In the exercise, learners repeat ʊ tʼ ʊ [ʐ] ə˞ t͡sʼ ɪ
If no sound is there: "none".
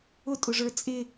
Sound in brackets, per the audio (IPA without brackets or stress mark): ʐ